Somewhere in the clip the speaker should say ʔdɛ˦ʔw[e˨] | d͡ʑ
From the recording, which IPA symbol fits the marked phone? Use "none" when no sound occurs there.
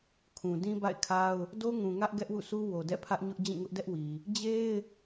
i˨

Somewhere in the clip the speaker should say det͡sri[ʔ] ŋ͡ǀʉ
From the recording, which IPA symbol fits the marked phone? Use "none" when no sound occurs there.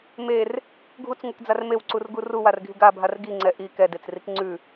k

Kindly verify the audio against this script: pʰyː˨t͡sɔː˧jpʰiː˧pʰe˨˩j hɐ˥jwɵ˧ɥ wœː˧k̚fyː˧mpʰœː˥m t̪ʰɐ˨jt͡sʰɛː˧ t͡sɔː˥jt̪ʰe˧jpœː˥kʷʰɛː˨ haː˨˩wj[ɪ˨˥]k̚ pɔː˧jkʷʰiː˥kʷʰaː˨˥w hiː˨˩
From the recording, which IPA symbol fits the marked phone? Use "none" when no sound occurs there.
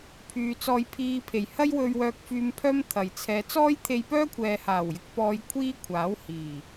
ɪ˧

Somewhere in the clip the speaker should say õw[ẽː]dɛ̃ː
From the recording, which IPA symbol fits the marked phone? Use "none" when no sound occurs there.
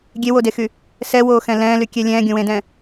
ẽ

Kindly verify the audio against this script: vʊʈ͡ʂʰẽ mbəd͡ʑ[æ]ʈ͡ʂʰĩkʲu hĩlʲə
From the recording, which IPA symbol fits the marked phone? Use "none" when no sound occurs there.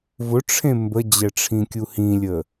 ɛ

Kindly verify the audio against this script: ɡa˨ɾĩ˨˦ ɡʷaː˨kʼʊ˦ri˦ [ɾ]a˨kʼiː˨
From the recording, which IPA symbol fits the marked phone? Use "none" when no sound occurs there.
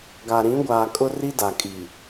d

